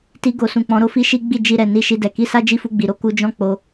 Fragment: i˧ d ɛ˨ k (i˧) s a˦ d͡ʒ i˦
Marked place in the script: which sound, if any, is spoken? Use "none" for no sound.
i˧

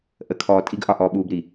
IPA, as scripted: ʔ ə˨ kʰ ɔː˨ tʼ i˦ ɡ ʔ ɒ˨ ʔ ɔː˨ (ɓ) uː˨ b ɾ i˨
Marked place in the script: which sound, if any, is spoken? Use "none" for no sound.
ɓ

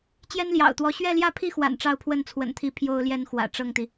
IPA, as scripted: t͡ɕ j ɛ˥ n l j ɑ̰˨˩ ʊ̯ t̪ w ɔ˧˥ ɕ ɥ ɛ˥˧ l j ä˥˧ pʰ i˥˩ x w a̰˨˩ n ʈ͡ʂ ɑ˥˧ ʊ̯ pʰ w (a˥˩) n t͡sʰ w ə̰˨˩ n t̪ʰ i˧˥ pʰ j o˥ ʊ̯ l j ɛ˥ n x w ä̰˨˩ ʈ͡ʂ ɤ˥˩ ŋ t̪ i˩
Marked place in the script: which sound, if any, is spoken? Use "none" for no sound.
ə˥˩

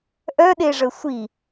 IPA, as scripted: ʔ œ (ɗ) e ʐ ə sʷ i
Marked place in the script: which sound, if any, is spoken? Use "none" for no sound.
ɗ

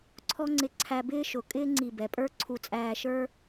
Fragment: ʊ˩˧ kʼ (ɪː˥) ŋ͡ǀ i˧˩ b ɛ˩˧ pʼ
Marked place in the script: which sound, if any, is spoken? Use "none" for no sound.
ɪː˥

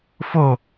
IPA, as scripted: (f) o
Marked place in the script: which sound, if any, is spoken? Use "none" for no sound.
f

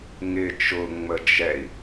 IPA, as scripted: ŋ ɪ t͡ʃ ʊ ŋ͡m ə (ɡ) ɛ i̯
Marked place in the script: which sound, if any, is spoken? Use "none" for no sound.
d͡ʒ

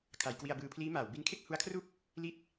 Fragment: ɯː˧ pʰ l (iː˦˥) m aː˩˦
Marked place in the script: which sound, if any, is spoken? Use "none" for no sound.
iː˦˥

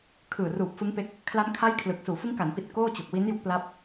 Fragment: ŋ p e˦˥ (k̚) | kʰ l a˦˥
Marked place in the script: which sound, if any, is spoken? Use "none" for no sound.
k̚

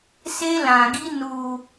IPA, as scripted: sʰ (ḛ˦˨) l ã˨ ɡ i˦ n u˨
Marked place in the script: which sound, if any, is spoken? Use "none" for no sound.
e˦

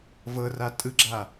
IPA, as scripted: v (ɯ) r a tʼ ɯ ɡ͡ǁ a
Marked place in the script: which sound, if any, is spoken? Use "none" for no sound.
ɤ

